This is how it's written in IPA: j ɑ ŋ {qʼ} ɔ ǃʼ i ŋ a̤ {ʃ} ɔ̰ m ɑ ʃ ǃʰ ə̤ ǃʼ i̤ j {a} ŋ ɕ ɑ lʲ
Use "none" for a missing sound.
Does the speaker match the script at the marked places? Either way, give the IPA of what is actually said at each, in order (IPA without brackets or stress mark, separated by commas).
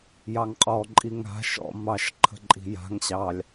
qʼ, ʃ, a̤